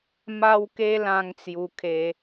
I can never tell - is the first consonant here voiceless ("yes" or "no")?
no